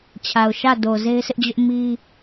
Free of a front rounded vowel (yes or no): yes